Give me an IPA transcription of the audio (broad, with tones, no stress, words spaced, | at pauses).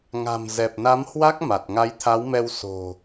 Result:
ŋa̤˨˩m zɛ˨˩p̚na˨˦mhwa˦˥k̚ ma˨˩t̚ ŋa˨˦jt̪ʰa˨˦wmɛ˧w so̤˨˩